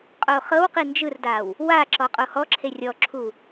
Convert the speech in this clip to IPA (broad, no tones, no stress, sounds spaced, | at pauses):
qʼ o χ ɤ w q i n d͡ʒ ɯ r d a w | w a ǁ ɔ qʼ o h ɔ ǁʰ e rʲ ɔ ǁʰ u